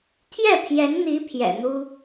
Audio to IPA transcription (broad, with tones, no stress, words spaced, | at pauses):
t̪ʰjɛ˥˩pʰjɛ˧˥nn̪i˧˥ pʰjɛ̰˨˩n̪u˥